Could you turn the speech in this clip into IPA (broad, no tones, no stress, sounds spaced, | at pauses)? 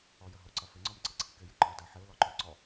ɔ j ə ɦ o ǀ ɐ f ɪ ŋ͡ǀ ɔ m ǀ ɪ ǀʰ i k ɪ j ɪ ǃ ɔ d a ħ ɪ ʊ̯ l ɔ ǃ ʉ ǀ ɔ